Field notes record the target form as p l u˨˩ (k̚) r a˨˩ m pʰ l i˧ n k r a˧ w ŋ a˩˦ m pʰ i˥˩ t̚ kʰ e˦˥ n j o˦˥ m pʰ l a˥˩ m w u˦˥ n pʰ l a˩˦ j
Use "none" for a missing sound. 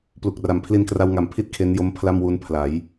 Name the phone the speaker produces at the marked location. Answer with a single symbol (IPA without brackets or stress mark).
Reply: k̚